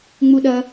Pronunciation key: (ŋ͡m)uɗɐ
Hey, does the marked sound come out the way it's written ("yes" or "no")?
yes